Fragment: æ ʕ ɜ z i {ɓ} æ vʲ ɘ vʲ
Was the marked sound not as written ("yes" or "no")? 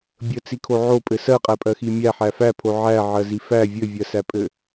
yes